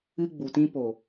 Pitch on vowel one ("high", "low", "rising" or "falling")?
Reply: high